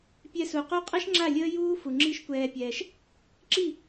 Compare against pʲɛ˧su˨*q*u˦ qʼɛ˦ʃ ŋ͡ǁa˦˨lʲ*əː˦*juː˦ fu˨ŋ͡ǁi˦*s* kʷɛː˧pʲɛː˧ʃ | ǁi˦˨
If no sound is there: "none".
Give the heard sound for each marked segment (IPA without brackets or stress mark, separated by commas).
q, əː˦, ʃ